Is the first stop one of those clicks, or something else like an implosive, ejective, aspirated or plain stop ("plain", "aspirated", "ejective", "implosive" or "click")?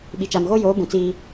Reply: implosive